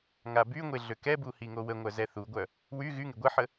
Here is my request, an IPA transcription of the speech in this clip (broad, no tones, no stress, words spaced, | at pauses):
ŋabyŋʷe ɮøkɛbu hiŋowəŋʷœ zɛθuɡʷœ | wy ɣyŋe ɡʷəħə